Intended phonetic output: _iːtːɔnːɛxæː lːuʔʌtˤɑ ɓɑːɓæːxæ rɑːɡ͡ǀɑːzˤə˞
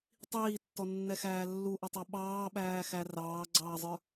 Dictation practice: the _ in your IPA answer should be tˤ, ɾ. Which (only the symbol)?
tˤ